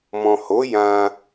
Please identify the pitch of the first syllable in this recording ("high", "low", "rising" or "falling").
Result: low